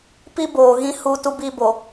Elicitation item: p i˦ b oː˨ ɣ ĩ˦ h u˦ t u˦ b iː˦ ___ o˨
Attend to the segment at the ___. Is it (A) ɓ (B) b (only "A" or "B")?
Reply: B